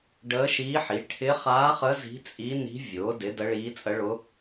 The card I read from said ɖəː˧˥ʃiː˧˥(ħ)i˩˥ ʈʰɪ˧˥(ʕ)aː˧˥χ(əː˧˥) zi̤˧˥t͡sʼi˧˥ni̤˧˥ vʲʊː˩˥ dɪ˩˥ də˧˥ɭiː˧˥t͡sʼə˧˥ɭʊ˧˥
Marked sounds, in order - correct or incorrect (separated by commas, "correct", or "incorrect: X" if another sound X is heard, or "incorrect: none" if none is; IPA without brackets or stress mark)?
correct, incorrect: χ, incorrect: ə˧˥